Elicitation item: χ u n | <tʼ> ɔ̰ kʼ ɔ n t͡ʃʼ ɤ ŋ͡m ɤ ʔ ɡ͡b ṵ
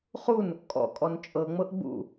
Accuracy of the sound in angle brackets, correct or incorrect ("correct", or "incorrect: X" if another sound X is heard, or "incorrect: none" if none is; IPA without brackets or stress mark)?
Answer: incorrect: kʼ